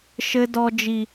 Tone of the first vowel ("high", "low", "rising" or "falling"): high